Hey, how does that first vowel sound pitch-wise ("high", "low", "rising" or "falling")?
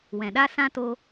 low